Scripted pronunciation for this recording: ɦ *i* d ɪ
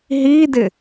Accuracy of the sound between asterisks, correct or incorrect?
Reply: correct